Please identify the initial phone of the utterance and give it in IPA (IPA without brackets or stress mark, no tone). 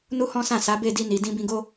n